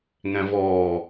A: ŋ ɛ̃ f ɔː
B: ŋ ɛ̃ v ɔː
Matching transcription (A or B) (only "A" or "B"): B